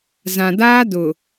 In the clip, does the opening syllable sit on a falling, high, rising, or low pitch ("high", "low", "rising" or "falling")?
low